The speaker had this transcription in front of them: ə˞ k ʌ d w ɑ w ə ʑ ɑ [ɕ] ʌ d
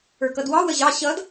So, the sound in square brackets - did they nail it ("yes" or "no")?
yes